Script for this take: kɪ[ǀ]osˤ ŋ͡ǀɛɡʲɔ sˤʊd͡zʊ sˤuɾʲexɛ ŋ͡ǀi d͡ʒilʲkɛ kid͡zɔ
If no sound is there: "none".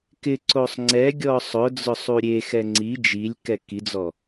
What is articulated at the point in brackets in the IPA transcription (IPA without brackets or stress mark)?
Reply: ǀ